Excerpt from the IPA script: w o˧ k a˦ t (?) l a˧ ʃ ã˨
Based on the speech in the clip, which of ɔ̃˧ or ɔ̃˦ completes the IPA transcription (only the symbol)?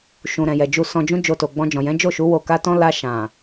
ɔ̃˦